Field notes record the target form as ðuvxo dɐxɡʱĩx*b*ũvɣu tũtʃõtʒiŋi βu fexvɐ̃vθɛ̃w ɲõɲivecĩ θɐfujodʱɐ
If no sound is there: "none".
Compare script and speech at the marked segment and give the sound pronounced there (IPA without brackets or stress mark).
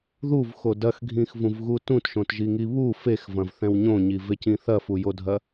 v